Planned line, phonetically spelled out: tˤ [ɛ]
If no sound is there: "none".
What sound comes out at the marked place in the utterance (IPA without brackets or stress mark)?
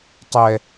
ɛ